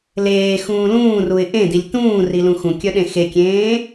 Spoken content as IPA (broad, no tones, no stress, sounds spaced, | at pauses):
l eː x ũː l ũː r u ɪ̯ ʔ ẽ d i lʲ t ũː r i l ũ x ũ kʲ œ ɗ ẽ x e kʲ ẽː